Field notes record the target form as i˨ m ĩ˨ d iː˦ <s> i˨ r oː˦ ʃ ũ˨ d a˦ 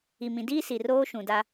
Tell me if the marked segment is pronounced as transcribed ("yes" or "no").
yes